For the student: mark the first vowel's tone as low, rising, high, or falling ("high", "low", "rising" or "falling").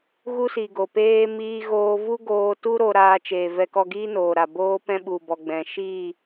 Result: high